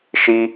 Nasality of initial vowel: oral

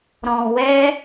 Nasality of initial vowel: nasal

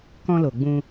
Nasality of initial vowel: nasal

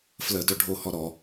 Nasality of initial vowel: oral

